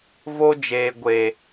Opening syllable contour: high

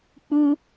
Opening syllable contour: high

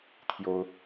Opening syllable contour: high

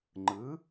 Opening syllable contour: rising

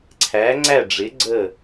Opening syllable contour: rising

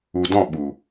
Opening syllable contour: low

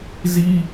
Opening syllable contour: high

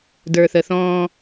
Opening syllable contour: low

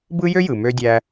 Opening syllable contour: high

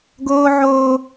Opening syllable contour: high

